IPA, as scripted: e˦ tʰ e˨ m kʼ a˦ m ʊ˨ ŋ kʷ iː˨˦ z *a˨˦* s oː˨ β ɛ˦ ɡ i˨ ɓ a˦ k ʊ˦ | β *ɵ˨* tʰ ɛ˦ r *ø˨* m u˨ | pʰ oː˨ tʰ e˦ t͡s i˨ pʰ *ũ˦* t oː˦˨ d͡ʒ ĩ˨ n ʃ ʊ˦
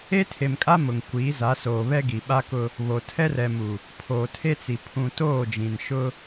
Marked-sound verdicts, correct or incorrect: correct, incorrect: o˨, incorrect: ɛ˨, incorrect: ũ˨

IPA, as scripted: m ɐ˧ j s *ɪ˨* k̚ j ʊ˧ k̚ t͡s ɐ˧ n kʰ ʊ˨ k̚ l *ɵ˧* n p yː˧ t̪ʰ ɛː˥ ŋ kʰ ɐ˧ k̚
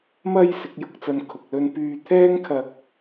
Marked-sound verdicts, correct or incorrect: incorrect: ɪ˨˥, correct

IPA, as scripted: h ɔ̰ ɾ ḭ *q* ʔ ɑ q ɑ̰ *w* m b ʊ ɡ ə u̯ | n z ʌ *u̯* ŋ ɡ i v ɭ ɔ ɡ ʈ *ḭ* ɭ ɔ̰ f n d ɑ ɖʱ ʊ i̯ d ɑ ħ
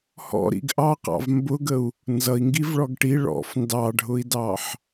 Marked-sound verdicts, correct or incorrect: incorrect: ɡ, incorrect: v, incorrect: i̯, incorrect: i

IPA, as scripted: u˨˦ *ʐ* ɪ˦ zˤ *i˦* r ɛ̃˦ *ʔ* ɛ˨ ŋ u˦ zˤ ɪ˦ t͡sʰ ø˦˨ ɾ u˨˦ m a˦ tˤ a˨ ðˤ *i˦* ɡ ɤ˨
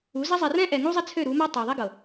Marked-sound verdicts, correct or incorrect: incorrect: z, incorrect: i˨, correct, correct

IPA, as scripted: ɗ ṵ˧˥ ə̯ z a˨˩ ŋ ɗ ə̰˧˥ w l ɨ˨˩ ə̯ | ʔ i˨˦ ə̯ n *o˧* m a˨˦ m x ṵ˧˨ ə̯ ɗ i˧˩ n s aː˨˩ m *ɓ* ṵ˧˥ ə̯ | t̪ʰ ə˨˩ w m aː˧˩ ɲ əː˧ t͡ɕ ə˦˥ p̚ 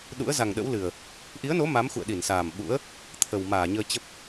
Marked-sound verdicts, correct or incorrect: incorrect: o˨˦, correct

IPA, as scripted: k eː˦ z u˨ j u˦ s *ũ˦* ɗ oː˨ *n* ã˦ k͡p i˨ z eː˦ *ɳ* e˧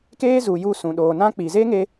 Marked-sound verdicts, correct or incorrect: incorrect: ũ˨, correct, incorrect: ŋ

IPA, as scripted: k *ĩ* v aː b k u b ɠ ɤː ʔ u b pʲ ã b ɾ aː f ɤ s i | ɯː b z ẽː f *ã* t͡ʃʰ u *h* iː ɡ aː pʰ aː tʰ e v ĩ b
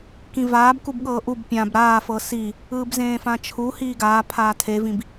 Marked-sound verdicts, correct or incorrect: correct, correct, correct

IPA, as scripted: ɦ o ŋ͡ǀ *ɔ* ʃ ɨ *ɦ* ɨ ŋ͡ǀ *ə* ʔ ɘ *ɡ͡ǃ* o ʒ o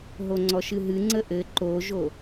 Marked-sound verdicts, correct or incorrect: correct, correct, correct, incorrect: ǃ

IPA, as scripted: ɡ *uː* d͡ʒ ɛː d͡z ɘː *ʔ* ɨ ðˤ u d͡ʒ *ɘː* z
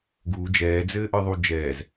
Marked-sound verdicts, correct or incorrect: correct, correct, incorrect: ɛː

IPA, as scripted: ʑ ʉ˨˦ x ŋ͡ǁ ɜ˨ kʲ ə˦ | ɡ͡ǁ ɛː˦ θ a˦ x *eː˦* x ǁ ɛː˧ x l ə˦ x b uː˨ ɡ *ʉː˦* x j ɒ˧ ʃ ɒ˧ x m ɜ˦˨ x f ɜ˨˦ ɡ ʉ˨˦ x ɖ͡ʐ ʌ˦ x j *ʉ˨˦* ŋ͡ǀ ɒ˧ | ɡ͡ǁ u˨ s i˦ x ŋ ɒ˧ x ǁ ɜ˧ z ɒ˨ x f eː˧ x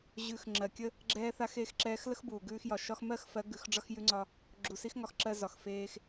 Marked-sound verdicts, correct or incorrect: incorrect: eː˧, correct, incorrect: ʉ˧

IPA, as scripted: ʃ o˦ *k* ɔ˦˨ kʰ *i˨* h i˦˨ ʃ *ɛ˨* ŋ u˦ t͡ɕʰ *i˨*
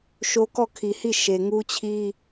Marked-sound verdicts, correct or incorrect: correct, correct, incorrect: e˨, incorrect: i˦

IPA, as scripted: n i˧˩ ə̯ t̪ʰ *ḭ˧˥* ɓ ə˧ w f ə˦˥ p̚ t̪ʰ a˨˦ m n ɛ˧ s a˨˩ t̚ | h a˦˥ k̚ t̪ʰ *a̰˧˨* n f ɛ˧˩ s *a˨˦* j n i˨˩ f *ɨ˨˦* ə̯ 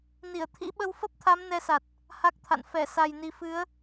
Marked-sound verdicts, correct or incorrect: correct, correct, incorrect: a˨˩, correct

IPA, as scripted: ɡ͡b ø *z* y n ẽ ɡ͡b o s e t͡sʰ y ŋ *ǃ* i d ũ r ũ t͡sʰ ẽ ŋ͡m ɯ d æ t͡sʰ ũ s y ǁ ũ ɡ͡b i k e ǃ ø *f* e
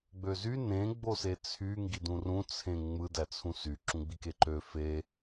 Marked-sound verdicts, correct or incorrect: correct, incorrect: ɡ, correct

